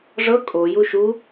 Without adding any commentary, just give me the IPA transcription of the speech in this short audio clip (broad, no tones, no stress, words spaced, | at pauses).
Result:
ʐɤ kʼo juʃu